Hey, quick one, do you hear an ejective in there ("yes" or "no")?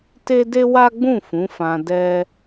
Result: no